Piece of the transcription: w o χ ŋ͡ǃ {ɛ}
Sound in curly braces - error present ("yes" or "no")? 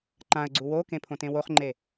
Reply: yes